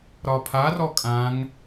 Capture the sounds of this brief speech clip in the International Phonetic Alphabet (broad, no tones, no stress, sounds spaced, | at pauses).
ɾ ɒ pʰ a r ɔ kʼ ã ŋ